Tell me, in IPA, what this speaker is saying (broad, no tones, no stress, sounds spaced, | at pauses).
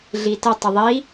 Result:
ɮ i t ə tˤ ə ðˤ i